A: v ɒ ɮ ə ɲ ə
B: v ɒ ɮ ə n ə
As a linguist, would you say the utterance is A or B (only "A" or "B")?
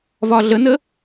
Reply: B